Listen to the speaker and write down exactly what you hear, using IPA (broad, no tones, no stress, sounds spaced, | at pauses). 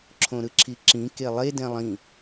ǁʰ õ ɾ ɯ ǁʰ i ǁ ĩ k e lˠ e d ɛ̃ lˠ ĩ